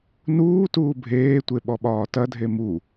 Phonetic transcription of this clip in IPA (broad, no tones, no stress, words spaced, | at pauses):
nuːtuː bʱeːtʷe ɓɔɓɒːtɐdʱe mu